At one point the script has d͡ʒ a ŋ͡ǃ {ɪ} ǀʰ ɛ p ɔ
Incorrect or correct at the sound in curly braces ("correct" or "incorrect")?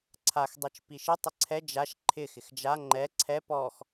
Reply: incorrect